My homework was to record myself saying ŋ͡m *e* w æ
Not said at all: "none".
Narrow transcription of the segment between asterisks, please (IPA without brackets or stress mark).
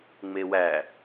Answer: e